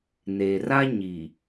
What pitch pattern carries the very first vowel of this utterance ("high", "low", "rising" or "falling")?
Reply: low